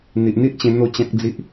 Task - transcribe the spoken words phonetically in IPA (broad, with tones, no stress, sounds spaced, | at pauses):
n̪ i˨ ʔ n̪ i˦ ʔ t͡ɕ ẽ˧ n̪ o˥˧ t͡ɕ ã˦ k̚ d͡z i˦ ʔ